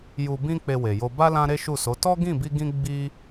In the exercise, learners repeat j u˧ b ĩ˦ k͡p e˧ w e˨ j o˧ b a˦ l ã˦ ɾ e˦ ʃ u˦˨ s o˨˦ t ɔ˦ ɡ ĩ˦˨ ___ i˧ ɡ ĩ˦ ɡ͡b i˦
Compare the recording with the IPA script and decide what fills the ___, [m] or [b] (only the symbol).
b